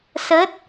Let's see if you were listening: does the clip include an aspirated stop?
no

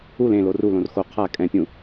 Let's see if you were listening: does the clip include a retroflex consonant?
no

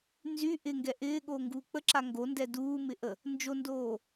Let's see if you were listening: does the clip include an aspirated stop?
no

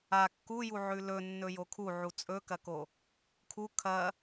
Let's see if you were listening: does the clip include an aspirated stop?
yes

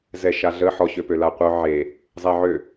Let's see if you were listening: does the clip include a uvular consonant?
yes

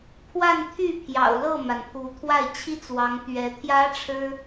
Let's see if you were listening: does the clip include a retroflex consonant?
yes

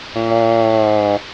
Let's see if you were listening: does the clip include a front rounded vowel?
no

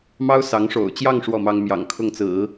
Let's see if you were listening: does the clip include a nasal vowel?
no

